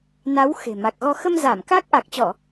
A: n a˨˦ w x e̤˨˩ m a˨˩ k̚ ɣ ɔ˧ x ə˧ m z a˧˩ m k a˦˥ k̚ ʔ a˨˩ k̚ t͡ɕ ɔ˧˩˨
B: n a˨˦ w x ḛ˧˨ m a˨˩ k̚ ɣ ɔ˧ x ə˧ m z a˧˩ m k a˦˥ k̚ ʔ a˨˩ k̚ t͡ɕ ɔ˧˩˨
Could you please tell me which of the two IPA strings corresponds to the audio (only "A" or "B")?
A